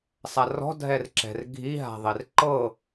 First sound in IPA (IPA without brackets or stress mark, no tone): sˤ